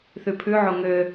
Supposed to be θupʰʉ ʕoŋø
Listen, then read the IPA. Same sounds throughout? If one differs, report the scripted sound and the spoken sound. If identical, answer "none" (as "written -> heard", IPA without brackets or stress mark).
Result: u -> ʉ